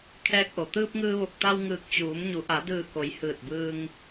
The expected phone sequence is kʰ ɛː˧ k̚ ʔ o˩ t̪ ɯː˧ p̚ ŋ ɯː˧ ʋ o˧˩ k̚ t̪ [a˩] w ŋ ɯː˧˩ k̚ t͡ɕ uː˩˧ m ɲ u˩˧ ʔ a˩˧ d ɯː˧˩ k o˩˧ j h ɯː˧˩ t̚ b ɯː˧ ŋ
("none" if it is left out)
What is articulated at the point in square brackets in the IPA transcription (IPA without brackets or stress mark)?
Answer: a˧